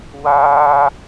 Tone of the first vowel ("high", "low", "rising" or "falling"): high